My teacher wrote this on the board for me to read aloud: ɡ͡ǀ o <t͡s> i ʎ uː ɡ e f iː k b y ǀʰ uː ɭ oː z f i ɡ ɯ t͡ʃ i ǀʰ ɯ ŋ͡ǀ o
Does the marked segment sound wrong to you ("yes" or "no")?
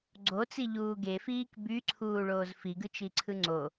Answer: no